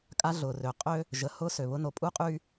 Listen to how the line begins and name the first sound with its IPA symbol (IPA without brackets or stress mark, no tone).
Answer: kʼ